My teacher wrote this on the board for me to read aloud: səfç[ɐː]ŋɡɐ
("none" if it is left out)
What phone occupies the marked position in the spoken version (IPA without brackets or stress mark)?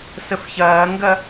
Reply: ɐː